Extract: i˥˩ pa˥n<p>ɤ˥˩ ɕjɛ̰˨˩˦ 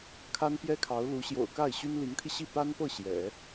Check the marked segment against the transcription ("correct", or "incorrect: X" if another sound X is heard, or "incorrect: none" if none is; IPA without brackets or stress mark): correct